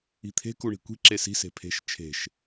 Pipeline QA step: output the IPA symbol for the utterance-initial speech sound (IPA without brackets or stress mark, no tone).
i̤